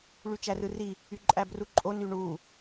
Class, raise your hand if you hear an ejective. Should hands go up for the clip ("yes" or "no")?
yes